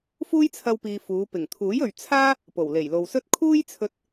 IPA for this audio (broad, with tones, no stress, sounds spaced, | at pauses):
f uː˥ j t͡sʰ ɐ˧ w p iː˨ f uː˨˧ p ɪ˨˩ ŋ t̪ʰ uː˨˥ j ɵ˨ ɥ t͡sʰ aː˥ | p o˨˩ w l e˨˩ j l o˨ w s ɵ˥ t̚ kʰ uː˥ j t͡sʰ ɵ˧ t̚